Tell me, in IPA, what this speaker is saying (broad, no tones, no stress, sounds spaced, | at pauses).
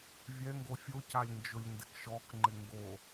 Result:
vʲ ɛ ŋ ɡ o fʲ o c a lʲ n d͡ʒ ʊ lʲ n d ɪ k ʃ ɔ k ŋ͡ǃ ɪ ŋ ɡ o